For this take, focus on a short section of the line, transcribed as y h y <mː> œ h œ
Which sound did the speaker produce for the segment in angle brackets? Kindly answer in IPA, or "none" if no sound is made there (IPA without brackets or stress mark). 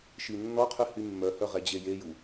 mː